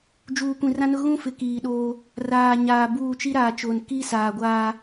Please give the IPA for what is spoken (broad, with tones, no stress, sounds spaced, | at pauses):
d͡ʒ uː˨ kʷ ĩ˨ r ã˦ n ʊ˦ ɣ ũ˦ f ɪ˨ k iː˨ ɗ oː˦ | r aː˨ ɲ aː˨ b uː˦˨ t͡ʃ i˦ ɾ aː˨ t͡ʃ oː˨ n k i˦ s aː˨ ɡʷ aː˦